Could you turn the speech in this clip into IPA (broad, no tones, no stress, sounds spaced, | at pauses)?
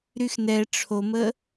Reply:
ɾ y x n ɛ ʈ͡ʂʰ o m ə